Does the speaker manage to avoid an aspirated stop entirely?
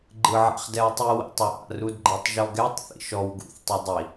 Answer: yes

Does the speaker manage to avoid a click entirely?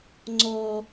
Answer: no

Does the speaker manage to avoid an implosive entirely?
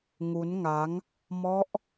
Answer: yes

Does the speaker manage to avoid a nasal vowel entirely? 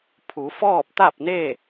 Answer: yes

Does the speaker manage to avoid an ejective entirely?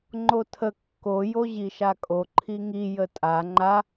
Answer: no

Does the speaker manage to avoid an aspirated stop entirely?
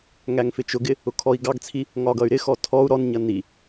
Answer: no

